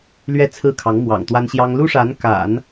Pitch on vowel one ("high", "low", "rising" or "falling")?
falling